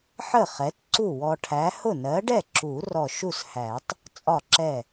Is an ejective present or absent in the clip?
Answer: present